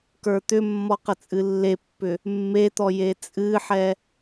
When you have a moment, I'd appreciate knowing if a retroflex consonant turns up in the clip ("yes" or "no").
no